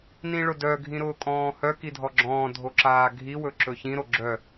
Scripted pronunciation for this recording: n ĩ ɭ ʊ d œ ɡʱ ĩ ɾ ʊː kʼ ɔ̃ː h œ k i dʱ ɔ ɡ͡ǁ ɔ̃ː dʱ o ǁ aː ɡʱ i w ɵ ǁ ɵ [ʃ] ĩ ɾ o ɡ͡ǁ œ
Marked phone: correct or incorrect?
incorrect: ç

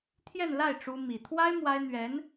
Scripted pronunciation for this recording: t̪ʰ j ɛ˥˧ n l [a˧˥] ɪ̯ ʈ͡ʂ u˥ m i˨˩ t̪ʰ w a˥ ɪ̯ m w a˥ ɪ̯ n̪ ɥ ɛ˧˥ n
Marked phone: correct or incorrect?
incorrect: a˥˩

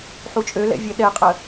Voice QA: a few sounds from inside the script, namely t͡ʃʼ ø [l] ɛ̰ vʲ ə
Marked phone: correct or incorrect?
correct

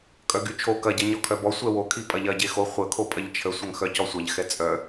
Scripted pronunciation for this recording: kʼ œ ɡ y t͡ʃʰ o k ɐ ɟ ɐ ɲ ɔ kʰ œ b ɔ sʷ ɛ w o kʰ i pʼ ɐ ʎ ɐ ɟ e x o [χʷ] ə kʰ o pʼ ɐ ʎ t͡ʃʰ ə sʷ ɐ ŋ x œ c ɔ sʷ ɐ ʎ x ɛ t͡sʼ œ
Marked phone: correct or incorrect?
correct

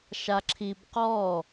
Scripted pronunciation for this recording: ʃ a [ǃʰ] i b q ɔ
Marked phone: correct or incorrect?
incorrect: ǁʰ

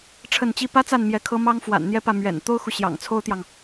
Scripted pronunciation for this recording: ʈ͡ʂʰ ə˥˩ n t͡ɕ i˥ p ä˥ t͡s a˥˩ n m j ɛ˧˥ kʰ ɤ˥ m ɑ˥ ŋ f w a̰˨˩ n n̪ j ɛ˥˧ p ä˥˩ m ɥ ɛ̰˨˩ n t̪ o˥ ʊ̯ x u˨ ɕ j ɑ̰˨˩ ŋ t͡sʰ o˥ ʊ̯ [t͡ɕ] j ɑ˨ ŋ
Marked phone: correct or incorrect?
incorrect: t̪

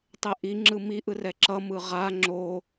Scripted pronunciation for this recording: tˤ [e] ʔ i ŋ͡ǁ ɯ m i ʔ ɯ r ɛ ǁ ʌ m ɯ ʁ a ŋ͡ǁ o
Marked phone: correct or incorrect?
correct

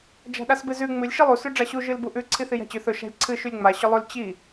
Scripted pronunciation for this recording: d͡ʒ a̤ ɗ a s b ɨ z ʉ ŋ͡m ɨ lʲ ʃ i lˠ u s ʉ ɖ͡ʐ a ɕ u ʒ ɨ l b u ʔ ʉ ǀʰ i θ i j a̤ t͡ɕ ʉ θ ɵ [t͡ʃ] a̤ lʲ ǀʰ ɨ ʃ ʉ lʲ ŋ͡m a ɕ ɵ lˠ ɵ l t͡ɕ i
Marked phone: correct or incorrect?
incorrect: ʃ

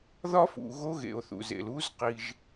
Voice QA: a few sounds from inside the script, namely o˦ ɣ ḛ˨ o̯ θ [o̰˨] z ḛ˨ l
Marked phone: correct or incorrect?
incorrect: ṵ˨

